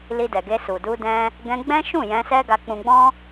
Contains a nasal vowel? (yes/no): yes